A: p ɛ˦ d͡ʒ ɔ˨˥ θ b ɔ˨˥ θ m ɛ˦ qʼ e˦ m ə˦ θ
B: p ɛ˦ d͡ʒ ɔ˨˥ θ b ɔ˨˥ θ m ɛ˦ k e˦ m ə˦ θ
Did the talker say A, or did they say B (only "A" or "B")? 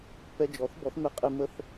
A